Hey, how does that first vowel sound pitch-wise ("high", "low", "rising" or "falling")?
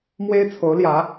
high